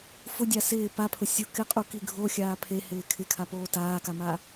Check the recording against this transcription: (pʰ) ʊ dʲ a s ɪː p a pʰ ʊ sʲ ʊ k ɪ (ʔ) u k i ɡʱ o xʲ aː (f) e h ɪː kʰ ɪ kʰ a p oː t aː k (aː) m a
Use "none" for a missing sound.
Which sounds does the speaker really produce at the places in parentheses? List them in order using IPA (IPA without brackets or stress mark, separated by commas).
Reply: f, qʼ, pʰ, a